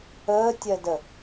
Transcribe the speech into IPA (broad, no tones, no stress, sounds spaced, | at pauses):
əː tʲ ɜ d ə